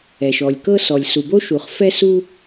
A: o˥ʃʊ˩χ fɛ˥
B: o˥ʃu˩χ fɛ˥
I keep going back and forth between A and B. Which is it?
B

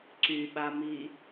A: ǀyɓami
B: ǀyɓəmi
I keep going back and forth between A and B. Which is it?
A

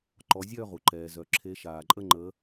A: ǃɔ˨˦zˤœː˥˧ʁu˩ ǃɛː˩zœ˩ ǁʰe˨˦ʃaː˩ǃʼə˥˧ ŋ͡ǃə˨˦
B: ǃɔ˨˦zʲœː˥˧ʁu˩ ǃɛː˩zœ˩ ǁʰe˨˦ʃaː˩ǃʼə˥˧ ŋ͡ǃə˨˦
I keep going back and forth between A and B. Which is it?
B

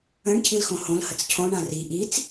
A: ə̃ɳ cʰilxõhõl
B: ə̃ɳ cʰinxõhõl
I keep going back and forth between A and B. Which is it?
A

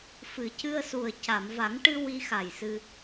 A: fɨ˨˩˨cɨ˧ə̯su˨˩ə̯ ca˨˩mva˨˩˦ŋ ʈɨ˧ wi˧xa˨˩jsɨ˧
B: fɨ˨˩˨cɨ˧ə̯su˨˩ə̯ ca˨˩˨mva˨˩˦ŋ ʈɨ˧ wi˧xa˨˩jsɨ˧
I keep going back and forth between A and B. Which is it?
B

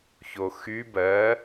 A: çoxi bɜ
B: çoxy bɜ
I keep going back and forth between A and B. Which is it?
B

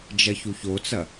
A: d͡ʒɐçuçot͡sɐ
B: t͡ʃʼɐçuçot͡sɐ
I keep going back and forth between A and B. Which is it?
A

